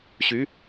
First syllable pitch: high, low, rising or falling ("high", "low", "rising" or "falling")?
rising